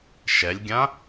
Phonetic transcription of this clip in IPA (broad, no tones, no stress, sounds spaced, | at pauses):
ʃ ɛ lʲ ɡʲ ã